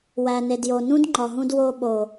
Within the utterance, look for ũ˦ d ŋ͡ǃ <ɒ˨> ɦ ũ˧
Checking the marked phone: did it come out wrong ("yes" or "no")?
no